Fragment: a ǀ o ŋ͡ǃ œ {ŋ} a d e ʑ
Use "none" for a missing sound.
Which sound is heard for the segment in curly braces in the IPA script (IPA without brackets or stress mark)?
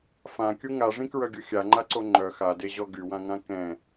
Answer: x